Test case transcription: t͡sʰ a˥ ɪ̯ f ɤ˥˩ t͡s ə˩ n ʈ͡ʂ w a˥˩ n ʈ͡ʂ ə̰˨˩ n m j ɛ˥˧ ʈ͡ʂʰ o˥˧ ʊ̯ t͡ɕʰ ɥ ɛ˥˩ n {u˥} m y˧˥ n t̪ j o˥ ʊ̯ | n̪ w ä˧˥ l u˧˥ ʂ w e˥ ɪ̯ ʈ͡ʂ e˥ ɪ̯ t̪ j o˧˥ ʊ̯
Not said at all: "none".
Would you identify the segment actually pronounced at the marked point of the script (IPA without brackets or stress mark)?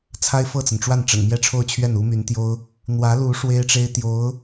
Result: u˥